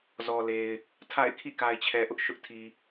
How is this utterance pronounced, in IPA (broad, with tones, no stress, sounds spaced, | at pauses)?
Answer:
z ɔ˨ l e˨ ɪ̯ | tʰ a̰˦˨ ɪ̯ kʰ ḭ˦˨ k a˨ ɪ̯ t͡ɕʰ ɛ˨ ʔ ʊ˦ ʔ ʃ ʊ˦ ʔ tʰ i˨